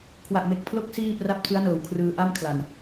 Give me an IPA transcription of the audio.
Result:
kʰ w a˨˩ ʔ m e˨˩ k̚ pʰ l o˦˥ k̚ s iː˥˩ p r a˦˥ p̚ tʰ ɯ˦˥ a̯ n ɤː˨˩ w kʰ r ɯː˧ ʔ a˥˩ m kʰ l a˨˩ n

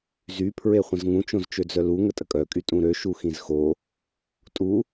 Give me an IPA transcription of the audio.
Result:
z y pʰ ɹ e χʷ ə̃ z ŋ ũ t͡ʃ õ z t͡ʃ ø d͡z œ l u ŋ ə tʼ ə kʼ œ kʼ y tʼ ũ ɾ ø ʃ u x ĩ z x o | tʼ u

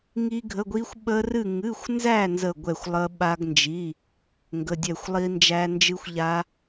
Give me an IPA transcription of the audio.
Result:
ŋ i˦˥ ɡʱ ə˧˥˧ ɡʷ i˦˥ xʷ ɓ ə˦˥ r ɨ˥˧ ŋ ɨ˧˥˧ xʷ n z æ˥˧ n z ə˥˧ ɡʷ ɛ˥˧ xʷ lˠ ə˦˥ ɓ a˦˥ ɡ n d͡ʒ i˧˥˧ | ŋ ɡ ə˧˥˧ dʲ ɛ˥˧ xʷ lˠ i˦˥ n d͡ʒ æ˦˥ n d͡ʒ ɨ˦˥ xʷ ʎ a˦˥

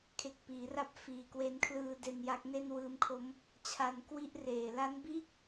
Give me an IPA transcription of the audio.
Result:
kʰ e˨˩ k̚ p iː˩˦ r a˦˥ p̚ f iː˨˩ k w e˧ n kʰ l ɯː˧ d e˧ n j a˦˥ k̚ n e˥˩ n w ɯː˧ m kʰ o˦˥ m | t͡ɕʰ a˧ n k w i˥˩ ʔ r eː˨˩ l a˦˥ n b iː˥˩ k̚

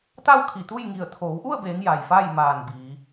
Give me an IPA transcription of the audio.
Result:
t̪ a˥˨ w kʰ i˧˩ t̪ u˥˨ j ŋ i˧˩ ə̯ t̪ʰ oː˩˧ w ʔ u˥˨ ə̯ b eː˩˧ ŋ j a˩ j f a˥˨ j m aː˧˩ n b iː˩˧

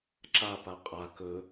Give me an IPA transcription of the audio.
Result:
ǁ a p a qʼ a k ɵ

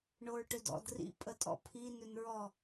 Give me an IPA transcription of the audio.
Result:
ɳ o ɹ ʈ ʏ d ɔ̰ d r ḭ pʼ ə tʼ ɔ̰ pʰ i n ʏ n ɹ ɔ

